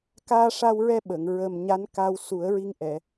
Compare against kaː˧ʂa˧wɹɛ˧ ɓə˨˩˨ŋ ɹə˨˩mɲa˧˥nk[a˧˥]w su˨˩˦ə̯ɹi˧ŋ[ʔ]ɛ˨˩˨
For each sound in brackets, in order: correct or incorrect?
incorrect: a˧, correct

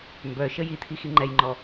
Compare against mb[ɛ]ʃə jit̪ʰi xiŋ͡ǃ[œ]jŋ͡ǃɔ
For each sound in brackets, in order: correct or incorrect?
incorrect: œ, incorrect: ɛ

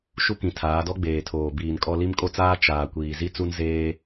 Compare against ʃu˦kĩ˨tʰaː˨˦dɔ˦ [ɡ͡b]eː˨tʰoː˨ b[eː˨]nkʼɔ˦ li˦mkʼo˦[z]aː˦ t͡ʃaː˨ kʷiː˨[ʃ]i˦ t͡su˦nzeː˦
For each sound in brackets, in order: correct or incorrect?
correct, incorrect: iː˨, incorrect: t͡s, incorrect: z

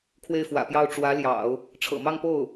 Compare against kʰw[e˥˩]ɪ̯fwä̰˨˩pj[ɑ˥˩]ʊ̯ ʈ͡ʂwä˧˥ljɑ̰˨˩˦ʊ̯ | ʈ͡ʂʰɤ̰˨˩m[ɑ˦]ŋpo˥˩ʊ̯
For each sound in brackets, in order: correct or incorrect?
correct, correct, incorrect: ɑ˥˧

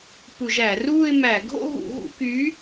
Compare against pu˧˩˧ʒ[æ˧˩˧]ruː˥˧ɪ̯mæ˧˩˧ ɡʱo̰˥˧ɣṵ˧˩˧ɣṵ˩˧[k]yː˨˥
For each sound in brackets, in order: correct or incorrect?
correct, correct

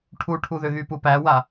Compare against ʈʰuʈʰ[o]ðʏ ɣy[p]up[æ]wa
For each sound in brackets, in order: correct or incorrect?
incorrect: u, correct, correct

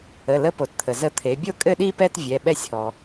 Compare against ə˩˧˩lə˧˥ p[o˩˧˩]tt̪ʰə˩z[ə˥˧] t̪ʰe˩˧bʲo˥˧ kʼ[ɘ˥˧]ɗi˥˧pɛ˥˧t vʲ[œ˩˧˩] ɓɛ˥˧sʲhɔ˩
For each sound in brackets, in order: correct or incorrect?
incorrect: o˩, incorrect: ə˧˥, correct, incorrect: ɛ˩˧˩

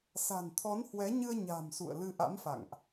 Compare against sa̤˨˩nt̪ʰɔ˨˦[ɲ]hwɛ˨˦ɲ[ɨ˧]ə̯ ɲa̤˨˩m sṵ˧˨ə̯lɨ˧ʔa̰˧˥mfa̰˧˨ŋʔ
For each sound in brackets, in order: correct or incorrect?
incorrect: n, correct

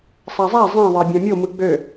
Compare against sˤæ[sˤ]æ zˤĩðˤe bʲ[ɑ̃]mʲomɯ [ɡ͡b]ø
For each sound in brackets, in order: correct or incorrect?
incorrect: zˤ, correct, correct

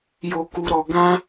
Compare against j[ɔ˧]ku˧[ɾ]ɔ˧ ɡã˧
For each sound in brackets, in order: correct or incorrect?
incorrect: o˧, correct

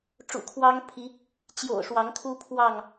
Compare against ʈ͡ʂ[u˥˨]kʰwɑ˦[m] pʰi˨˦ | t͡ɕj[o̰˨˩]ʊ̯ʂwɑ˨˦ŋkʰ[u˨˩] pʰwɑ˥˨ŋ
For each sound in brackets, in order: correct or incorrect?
incorrect: ṵ˨˩, incorrect: ŋ, correct, incorrect: u˦

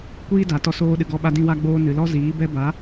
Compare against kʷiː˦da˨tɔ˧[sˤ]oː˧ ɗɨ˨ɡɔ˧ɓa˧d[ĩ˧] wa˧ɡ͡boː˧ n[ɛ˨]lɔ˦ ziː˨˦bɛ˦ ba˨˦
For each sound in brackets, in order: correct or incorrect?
incorrect: s, correct, incorrect: ɨ˨

